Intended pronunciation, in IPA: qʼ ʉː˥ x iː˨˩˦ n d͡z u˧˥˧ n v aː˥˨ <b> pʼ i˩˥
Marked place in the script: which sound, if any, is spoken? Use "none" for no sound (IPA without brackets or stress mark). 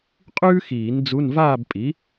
b